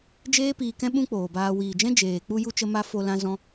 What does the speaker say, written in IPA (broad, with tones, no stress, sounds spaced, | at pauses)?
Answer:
d͡ʒ eː˦ p iː˧ k ɛ̃˦ ɓ ũ˦ k͡p oː˨ b aː˧ w iː˨ d͡ʒ ɛ̃˦ d͡ʒ eː˨ k͡p u˧ j u˧ t͡ʃ ə˦ m a˦ f o˧ l ã˧ z ɔ̃˧